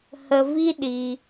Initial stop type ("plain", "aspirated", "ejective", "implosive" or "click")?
implosive